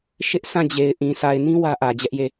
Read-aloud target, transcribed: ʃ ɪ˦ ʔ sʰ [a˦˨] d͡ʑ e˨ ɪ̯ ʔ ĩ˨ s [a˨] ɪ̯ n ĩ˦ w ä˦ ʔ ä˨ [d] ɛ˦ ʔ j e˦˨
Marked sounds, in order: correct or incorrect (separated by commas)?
incorrect, correct, incorrect